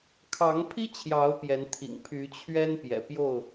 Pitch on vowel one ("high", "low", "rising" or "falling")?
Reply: rising